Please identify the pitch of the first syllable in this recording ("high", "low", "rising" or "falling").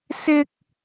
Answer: high